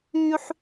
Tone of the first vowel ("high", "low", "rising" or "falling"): high